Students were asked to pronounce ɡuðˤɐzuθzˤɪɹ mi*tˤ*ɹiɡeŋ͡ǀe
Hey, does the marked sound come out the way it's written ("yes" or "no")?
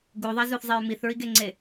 no